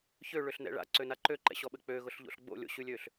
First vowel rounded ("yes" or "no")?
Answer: yes